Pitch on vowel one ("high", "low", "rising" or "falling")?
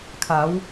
rising